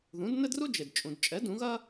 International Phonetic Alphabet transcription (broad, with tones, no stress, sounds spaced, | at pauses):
ð ũ˩˥ d n ɘ˥ d r u˥ d͡ʒ e˩ d t͡ʃʼ ũ˩ d t͡ʃʼ ɛ˩˥ d ũ˩˥ ɣ ɐ˥